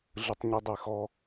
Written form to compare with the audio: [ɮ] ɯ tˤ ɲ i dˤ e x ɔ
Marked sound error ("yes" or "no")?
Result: no